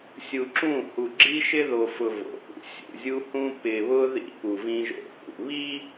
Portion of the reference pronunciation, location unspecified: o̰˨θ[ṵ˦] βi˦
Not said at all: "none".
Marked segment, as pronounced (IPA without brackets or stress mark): ṵ˨